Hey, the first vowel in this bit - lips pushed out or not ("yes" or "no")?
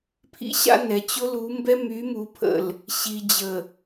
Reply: no